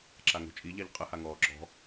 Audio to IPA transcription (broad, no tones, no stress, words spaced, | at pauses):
ǁaŋo̤t͡ʃʼiʎaʎ qʼəhaŋɔː ǁɔ̤